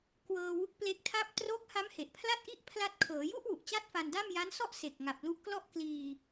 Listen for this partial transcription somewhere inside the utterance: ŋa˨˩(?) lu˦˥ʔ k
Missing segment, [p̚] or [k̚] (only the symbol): p̚